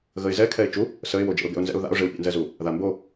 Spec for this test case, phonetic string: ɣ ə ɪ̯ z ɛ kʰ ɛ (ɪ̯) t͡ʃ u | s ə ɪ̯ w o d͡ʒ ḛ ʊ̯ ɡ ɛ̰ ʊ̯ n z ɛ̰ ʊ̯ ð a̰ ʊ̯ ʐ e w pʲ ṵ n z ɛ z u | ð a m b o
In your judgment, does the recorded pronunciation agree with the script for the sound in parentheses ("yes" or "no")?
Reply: yes